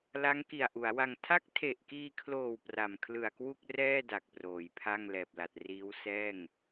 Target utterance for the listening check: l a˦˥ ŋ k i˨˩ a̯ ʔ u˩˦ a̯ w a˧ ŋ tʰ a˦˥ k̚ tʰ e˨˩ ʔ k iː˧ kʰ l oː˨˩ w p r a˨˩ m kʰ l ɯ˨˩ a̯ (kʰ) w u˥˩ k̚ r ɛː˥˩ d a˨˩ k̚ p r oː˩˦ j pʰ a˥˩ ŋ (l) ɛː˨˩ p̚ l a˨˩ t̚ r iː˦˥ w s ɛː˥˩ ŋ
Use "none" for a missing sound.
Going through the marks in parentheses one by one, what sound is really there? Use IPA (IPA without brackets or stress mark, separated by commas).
k, l